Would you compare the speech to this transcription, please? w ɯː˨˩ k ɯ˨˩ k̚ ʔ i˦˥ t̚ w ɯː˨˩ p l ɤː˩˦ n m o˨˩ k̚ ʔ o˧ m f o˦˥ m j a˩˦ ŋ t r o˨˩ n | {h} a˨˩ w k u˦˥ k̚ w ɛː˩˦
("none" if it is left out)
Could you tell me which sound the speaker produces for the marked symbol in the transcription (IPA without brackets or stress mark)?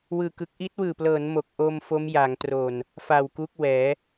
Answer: f